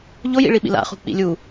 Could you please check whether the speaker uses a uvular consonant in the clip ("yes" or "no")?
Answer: yes